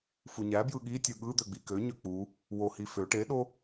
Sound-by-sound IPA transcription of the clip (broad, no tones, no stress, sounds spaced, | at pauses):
f u ɲ æ b j ɯ ɠ i tʲ ɯ ɠ ɯ d̪ ø ɡ͡b i k ø ɲ ø k͡p u | w o h i f ø ʈ e ɗ o